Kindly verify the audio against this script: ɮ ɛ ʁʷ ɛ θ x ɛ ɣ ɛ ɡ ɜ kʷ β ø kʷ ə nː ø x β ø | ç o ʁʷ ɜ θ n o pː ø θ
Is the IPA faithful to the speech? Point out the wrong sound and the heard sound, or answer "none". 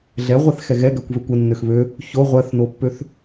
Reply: none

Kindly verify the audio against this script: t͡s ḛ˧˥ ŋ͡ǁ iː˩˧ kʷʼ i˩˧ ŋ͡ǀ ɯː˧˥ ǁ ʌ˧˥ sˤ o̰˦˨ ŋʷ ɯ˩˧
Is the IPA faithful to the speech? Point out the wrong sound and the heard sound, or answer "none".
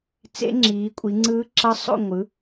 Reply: none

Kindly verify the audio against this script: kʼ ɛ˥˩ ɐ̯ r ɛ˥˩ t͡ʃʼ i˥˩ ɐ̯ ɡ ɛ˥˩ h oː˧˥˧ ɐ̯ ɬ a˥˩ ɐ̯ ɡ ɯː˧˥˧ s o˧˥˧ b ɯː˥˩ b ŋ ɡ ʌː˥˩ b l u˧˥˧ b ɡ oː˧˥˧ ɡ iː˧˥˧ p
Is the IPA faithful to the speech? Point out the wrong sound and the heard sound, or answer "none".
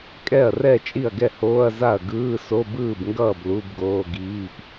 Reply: ɬ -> z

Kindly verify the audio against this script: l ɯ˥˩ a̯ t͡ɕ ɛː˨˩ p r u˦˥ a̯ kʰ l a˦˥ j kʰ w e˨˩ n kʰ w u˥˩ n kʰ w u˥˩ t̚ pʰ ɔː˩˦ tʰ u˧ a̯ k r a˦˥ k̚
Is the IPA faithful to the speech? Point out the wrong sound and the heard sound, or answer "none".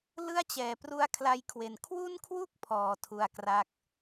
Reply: t̚ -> k̚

